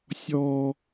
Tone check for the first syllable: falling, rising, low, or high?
high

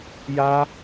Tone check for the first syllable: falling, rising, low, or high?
high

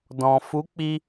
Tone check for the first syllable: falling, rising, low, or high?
low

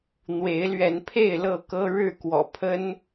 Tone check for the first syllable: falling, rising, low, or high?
rising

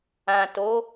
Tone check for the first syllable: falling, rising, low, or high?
low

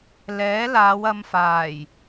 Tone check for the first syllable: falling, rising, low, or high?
rising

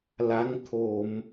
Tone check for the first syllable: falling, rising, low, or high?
rising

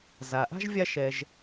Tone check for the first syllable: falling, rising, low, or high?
low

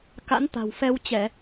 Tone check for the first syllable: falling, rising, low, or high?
rising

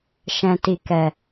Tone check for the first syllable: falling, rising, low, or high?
low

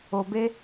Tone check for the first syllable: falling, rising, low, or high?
low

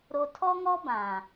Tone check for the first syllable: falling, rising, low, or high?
low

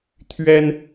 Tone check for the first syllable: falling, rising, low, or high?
high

